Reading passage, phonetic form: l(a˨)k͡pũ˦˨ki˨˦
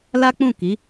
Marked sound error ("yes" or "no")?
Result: yes